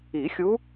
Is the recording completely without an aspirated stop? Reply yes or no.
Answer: yes